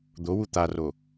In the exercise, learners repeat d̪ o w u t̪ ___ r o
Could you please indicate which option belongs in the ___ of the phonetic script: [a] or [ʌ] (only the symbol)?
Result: a